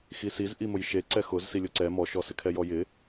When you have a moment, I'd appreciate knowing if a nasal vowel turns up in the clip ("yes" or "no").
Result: no